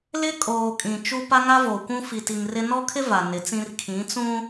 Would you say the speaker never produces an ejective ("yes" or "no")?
no